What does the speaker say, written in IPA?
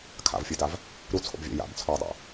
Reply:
kʰa̰vfʲodav | ɾut͡sʰo̰bvʲa̰ ja̰bt͡sʰɔɪ̯dˤa̰

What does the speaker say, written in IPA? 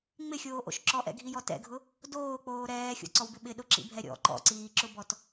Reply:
ŋ͡mɪxʲoːʔo̰ʃ ǁɔʔɛ̰ɡʱijɔ tɛ̰ɡʱʊ | doːk͡poː ɾɛːxʲo̰ǀɔwbɪ ɓɪɗʊǁḭbʱɛ ɾʲɔ̰ ǃɔ̰ǀiːǁʊbɔt

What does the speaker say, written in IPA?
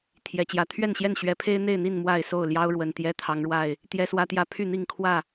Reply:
t̪ʰjɛ˨˩t͡ɕjä˨˦ t̪ʰɥɛ˥˨nɕjɛ˥˨nɕɥɛ˨˦ pʰe˦ɪ̯n̪e˥˨ɪ̯n̪i˥˨n mwa˥˨ɪ̯so˥˨ʊ̯ljɑ˦ʊ̯ɻwə˨˩n t̪jɛ˦t̪ʰɑ˨˦ŋɻwa˥˨ɪ̯ | t̪jɛ˦swä˦t̪jä˦ pʰy˥˨n̪i˥˨ŋkʰwä˥˨

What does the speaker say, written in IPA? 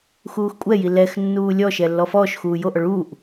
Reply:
xuːxkʷʼɛji lɛx nːuːlʲɔʃɛ lːɔfɔːʃxuː joʔɔ ɭuːʔ

